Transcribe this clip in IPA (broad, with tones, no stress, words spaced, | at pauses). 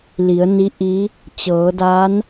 li˩˧ə̯ni˧˥ ʔi˧˥ | t͡ɕɤː˩˧ da˧˥n